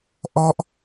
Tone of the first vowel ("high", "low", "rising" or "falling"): high